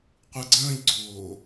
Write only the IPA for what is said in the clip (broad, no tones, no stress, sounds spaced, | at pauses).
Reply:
qʷ ɯ ɡ͡ǀ ə̃ː ʎ ɡ͡ǀ oː